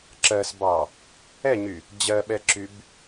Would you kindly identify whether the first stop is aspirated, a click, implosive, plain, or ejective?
click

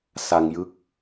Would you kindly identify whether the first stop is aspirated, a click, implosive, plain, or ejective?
plain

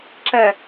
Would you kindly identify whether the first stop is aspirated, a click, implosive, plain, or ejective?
click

